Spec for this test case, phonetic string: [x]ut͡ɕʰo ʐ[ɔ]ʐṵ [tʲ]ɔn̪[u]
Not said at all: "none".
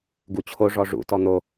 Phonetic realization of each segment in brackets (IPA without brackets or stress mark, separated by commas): ɡ, ɔ, t, o